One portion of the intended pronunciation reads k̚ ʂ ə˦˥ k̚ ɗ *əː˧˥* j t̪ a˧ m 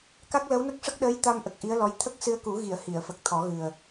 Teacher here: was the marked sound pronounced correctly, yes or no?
yes